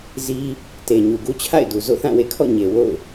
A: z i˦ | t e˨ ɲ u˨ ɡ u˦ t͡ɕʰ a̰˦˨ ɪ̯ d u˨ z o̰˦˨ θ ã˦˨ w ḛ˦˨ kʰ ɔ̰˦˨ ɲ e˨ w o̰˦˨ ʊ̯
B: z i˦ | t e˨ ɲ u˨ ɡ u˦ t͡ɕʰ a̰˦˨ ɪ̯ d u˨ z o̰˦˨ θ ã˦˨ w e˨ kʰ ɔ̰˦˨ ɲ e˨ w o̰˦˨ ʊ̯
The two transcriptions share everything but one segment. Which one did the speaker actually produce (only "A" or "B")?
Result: A